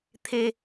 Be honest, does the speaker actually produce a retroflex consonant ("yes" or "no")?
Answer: no